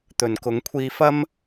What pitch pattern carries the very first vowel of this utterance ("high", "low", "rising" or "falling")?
low